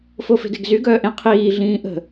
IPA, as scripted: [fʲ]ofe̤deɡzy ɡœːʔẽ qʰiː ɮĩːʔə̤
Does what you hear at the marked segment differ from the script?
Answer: yes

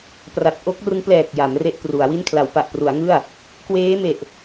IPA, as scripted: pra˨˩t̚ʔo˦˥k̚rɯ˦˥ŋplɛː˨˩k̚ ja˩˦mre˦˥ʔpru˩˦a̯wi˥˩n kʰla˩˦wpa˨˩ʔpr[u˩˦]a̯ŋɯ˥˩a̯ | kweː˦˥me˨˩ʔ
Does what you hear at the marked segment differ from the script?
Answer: no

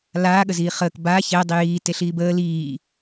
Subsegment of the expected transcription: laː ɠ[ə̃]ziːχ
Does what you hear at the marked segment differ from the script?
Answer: yes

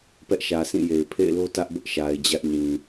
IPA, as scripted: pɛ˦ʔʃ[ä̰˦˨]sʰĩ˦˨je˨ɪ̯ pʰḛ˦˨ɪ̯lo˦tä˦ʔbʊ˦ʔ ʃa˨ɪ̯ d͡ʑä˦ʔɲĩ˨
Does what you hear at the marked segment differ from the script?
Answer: yes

